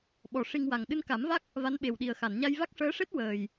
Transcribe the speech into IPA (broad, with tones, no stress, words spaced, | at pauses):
ɓɔ˨˩ ʂi˧ŋwa˨˩ŋ ɗɨ˧nka˨˩˦mva˦˥k̚ | va˧˥nɓe˨˩wɗi˨˩ə̯ xa˨˩˨nɲa˧jva˦˥k̚ ʂəː˧˥ʂe˦˥t̚ wəː˨˩j